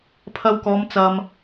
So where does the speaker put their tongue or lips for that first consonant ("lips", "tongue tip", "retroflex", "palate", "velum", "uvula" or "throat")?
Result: lips